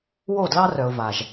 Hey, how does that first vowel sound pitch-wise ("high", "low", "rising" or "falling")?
falling